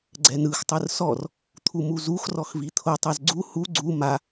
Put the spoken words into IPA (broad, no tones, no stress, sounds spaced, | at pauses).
ɡ͡ǀ ɛ n ɯ x tˤ ɯ r s ɔ r | t̪ʰ u m u z u x r ɔ x v i t̪ʰ o tˤ ɛ z ɡ͡ǀ u h u ɡ͡ǀ u m a